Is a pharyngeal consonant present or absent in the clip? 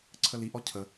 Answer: absent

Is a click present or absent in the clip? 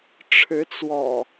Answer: absent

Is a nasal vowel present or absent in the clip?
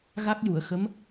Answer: absent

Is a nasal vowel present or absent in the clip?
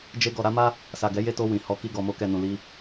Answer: present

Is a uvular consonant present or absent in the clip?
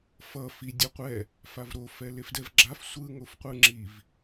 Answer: present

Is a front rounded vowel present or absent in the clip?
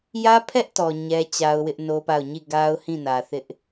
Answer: absent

